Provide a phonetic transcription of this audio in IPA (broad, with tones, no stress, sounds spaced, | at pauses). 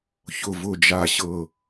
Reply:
ç ʊ˨˩ v ʊ˨˩ d͡ʒ a˨˩ ɕ ɤ˨˩